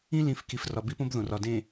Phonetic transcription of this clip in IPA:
ĩ˦ l ĩ˨ f k i˨ f r ɒ˨ b i˦ p õ˦ b ð õ˨ r ɒ˨ d ẽ˨

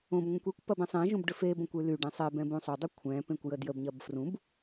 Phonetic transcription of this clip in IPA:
õ b ŋʷ ɛ̃ kʷ e kʷ p ɐ b ɛ̃ sˤ ẽ ʒ ũ b ɖ ʏ f e b õ kʷ y l y ɖ ẽ sˤ ɛ b ɛ̃ b ũ sˤ o dˤ ʏ kʷʰ ɛ̃ p ẽ kʷ j ə d j ə b ɲ ɐ b f r ũ b

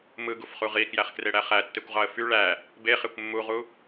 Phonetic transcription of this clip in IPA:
m ɯ ɡ u f χ u ʁ i k j æ χ k r e ɽ æ χ æ tː e kʷ ʁ ɑ ə̯ f y ɭ æ | b e χ e kʷ mː u ʁ u

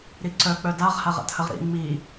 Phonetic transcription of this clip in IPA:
ɾ i ǀ œ k͡p œ d a ʁ h a ʁ a̰ t h ə ʁ ɾ ḭ ŋ͡m i

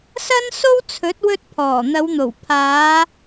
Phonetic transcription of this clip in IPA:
s ɐ˥ n s o˥ w t͡sʰ ɵ˨˥ t̚ w ɵ˧ t̚ pʰ ɔː˨˩ n̪ ɐ˨˧ w n̪ o˨˩ w pʰ aː˨˧

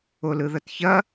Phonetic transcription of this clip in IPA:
o l ɯ ð ɐ t ç ɐ

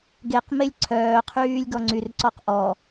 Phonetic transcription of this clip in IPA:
ɡ e q m e lʲ ǀʰ œː qʰ yː lʲ ɡ ɔ ŋ͡ǀ y r ǀ ɔ q ʔ ɔ

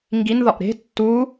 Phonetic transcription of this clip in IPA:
ŋ ɡ i n ð ɒ ʔ ɾ e̤ tː u

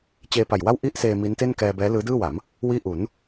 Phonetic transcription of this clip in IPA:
t͡ɕ eː˧ p a˨˩ j w a˥˩ w ʔ i˥˩ ʔ s eː˧ m i˦˥ n t e˥˩ n k ɛː˧ b ɛː˦˥ l ɯː˦˥ d ɯː˥˩ w a˩˦ m | w iː˥˩ ʔ u˩˦ n

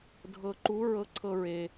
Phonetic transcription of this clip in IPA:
dʱ ɤ˧ ǃ u˧˥ ɹ ɤ˧˥ ǀʰ ɤ˧ ɹ e˩

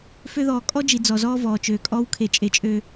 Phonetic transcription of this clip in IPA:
f ø˦ ð ɔː˨ kʼ ɔ˦ d͡ʒ i˨ d͡z ɔ˨ z ɔː˦ v ɔː˨ t͡ʃ øː˨ kʼ ɔ˦ w kʰ e˨ t͡ʃʼ e˨ t͡ʃʼ ø˨

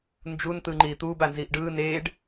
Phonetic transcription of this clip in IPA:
n d͡ʒ u n t̪ ɯː ŋ͡ǃ iː t̪ uː b a n z iː ʔ ɖ ɯː n e ɖ

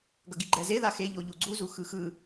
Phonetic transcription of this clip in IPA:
ɡ ʌ ɡ i ɡ͡ǃ ɛ z e ð a x e ʎ o ʎ u ɡ͡ǀ u z u x ɯ x ɯ

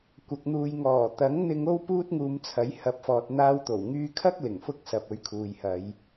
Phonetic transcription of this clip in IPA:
kʷ ɐ˨ k̚ n̪ uː˨ j ŋ ɔː˨˩ t̪ ɐ˨˥ ŋ n̪ ɪ˧ ŋ o˥ w p uː˥ t̚ ŋ uː˧ m t͡sʰ ɐ˨˥ j h ɐ˨˥ p̚ f ɔː˨ t̚ n̪ aː˧ w t̪ o˨˩ w ŋ yː˧ kʰ ɐ˥ k̚ l ɪ˨˩ ŋ f ʊ˧ k̚ s ɐ˨ p̚ ɵ˨˧ ɥ kʰ uː˨ j h ɐ˨˧ j

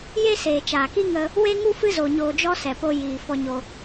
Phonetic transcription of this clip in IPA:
j e˦ s eː˨ t͡ʃ aː˨ k i˦ ŋ ə˦ | w e˦ ŋ u˦ f ɨ˦ z o˧ ɲ oː˧ d͡ʒ ɔ˦ s ɛ˨ p o˧ j iː˨ f ɔ˧ ɲ o˧

